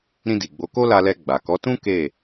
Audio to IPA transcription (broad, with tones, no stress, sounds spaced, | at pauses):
ɾ ĩ˧ d i˨ ɡ͡b o˨˦ k o˦ l a˧ l ɛ˧ ɡ͡b a˨ k ɔ˨˦ t ũ˦ k e˦˨